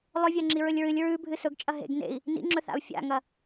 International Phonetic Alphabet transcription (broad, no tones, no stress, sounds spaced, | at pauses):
lˠ ɵ vʲ a ŋ͡ǁ i ɹ ɵ lʲ ɹ ɨ lʲ ɹ ʉ bʱ ɨ s ɵ ɡ t͡ʃʼ ɐ ɦ ḛ ɡ n ḛ i̯ | n ḭ ŋ͡ǁ ɵ θ a̰ u̯ fʲ a̰ ŋ ɐ